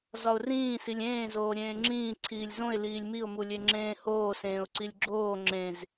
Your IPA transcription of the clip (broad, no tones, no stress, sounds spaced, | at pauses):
z ɒ ʊ̯ r ĩː s i lʲ ẽː z oː ɾʲ ẽː ŋ͡ǁ ĩː ǀʰ iː lʲ z õ ɪ̯ l iː lʲ m i ʊ̯ m u lʲ e ŋ͡ǁ ẽː h oː s ẽː ʊ̯ ǀ i lʲ ɡ͡ǁ oː ŋ͡ǁ ẽ z